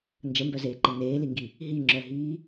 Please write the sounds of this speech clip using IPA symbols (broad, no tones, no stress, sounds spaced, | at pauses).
n d͡ʒ ə m b œ z eː ǃ e n eː l i ŋ ɡ i | ɦ i ŋ͡ǁ œ ɦ iː